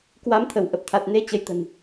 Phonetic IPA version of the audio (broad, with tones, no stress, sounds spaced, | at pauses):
k w a˨˦ m t̪ʰ ə˧˩ w ʔ ə˨˩ p̚ t̪ʰ a˨˩ t̚ n e˧ t͡ɕ ə˨˦ j t̪ ə̤˨˩ n